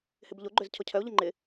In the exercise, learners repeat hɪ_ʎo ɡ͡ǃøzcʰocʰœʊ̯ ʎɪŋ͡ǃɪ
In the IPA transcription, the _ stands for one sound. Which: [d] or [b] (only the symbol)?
b